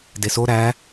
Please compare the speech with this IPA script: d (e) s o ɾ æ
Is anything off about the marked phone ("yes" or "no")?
no